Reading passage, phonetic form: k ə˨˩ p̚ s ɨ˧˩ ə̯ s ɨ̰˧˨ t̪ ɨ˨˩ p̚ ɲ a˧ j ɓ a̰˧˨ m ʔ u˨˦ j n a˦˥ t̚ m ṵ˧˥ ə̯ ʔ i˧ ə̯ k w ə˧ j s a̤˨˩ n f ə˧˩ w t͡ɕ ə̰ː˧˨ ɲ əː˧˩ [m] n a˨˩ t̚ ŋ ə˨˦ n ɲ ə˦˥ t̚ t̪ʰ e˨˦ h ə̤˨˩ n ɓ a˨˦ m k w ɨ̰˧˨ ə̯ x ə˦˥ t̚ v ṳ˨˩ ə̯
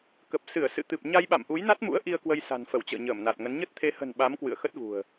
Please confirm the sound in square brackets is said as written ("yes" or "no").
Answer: yes